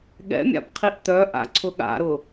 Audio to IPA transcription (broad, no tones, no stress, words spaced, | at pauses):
ɠɛ̰mʲa̰pqʰiʔ t̪œʔa̰ǀʰʊ ɠa̰ɾʊ